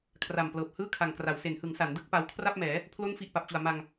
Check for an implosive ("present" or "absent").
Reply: absent